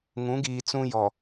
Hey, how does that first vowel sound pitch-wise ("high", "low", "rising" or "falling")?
rising